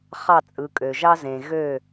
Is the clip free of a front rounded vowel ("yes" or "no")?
no